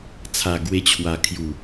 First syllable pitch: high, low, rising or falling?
low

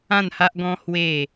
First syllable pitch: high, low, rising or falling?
falling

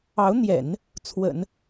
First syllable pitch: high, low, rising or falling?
rising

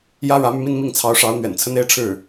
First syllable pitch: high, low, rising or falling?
high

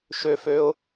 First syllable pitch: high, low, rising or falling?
low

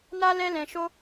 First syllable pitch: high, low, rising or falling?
high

